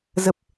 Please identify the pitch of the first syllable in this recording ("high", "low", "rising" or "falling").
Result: low